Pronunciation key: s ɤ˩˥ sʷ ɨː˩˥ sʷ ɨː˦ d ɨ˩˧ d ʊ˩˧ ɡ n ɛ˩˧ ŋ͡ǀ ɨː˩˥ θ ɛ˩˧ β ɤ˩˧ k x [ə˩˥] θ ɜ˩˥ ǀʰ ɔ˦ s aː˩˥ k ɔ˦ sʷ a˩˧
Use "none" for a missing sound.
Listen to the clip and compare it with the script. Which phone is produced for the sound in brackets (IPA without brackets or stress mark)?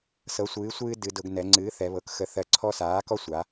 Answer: ə˩˥